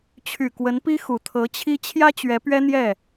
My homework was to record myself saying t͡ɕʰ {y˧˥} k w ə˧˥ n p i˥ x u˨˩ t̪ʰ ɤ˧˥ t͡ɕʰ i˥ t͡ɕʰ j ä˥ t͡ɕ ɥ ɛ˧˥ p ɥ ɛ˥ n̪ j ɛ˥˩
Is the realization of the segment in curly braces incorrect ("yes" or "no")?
yes